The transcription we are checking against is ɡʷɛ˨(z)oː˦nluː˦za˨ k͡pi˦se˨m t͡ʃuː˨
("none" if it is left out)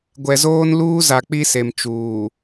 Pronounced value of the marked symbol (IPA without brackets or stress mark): z